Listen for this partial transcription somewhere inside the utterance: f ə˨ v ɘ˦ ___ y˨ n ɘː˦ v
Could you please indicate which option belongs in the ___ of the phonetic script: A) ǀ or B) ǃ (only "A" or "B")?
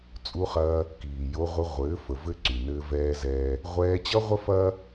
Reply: A